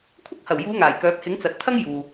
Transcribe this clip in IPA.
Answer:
kʷʰ ɐ˥ k̚ h ɐ˨˩ w j uː˨˧ ŋ aː˨˩ j k œː˨˥ p̚ h ɪ˨˥ ŋ t͡s ɐ˨ t̚ t̪ʰ ɐ˥ ŋ j uː˨

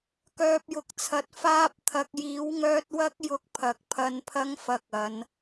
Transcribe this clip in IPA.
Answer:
k œː˨ p̚ j ʊ˨ k̚ t͡sʰ ɐ˨˥ t̚ f aː˧ p̚ t̪ʰ ɐ˨ k̚ j iː˨˥ w ŋ œː˧ t̚ w ɐ˧ k̚ j ʊ˨˥ k̚ pʰ ɐ˨ k̚ pʰ ɐ˧ n pʰ ɐ˧ ŋ f ɐ˨ k̚ ɐ˨˧ n

